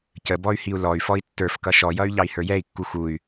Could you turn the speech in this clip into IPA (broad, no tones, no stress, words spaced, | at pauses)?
cəbɔy̯ hiu̯lɔy̯ fɔi̯tːə˞fkʌ ʃɔjʌy̯ ʎɑi̯hə˞jɛi̯kːu xuy̯